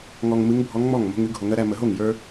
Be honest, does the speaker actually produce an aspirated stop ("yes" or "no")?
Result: no